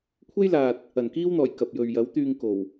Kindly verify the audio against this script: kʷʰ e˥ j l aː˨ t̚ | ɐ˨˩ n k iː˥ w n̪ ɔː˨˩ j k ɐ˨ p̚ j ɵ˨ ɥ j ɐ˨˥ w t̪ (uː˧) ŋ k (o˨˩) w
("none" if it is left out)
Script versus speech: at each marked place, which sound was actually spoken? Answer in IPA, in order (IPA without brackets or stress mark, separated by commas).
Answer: yː˧, o˨˩